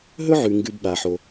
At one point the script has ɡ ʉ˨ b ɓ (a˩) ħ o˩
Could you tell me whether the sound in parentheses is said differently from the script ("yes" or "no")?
no